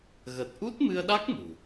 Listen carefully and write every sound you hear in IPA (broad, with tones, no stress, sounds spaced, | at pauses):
ɣ ə˨˩ t̚ ʔ u˦˥ t̚ m ɨ˧ ə̯ ɗ a˦˥ k̚ m ṳ˨˩